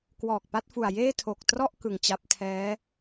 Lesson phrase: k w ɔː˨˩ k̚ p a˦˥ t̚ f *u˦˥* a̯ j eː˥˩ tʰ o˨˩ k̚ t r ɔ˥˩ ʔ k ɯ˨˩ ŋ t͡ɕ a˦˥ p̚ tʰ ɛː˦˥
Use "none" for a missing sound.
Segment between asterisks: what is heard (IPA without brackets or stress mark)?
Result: u˨˩